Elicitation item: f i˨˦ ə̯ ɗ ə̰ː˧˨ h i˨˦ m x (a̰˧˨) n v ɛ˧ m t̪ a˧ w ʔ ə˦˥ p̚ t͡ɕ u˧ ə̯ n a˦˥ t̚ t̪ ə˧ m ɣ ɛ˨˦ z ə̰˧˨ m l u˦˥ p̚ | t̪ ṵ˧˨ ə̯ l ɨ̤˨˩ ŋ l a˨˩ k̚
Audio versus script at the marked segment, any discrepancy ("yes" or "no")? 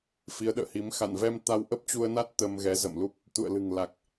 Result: no